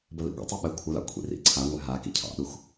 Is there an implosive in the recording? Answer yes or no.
yes